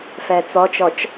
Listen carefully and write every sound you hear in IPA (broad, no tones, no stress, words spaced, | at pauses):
fæt͡sɒt͡ʃɒt͡ʃ